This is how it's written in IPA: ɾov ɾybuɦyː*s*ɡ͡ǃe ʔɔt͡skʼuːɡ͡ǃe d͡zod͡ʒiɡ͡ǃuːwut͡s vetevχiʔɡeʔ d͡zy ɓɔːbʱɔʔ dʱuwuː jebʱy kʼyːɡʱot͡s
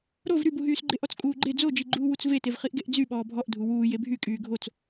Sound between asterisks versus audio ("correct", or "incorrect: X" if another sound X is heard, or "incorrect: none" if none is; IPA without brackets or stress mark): correct